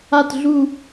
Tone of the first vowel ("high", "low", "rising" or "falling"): falling